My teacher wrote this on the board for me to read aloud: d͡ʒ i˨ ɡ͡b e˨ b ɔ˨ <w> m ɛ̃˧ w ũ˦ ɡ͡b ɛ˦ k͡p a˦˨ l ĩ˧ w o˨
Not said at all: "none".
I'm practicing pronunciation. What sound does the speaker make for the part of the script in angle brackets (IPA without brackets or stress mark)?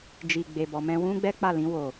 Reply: none